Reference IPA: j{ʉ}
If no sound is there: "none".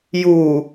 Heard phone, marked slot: u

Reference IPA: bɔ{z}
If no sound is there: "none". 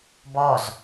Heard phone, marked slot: z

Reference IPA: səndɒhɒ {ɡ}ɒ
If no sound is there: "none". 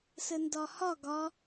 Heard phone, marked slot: ɡ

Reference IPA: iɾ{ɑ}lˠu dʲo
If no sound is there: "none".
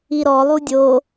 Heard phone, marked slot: ɔ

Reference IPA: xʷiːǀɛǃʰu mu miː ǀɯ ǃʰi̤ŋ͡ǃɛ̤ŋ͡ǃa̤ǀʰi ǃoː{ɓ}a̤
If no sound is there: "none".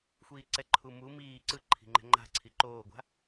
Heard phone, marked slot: ɡʷ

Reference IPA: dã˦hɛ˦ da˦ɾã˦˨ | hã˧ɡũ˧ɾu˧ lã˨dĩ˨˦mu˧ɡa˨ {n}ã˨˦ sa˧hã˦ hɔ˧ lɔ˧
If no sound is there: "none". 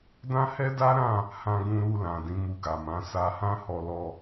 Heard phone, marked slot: m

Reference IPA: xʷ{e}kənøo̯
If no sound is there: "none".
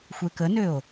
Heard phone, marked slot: e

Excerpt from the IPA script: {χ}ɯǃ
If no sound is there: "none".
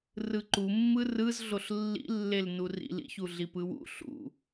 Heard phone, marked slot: r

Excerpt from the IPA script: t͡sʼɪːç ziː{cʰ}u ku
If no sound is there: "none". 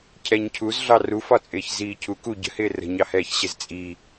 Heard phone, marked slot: cʰ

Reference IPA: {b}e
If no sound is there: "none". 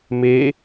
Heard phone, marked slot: m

